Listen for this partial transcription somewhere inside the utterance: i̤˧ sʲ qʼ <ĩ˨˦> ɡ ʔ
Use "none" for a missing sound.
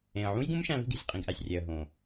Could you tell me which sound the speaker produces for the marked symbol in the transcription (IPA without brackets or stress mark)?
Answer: ĩ˨